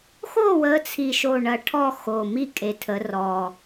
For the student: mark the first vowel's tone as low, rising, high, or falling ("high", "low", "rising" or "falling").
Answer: falling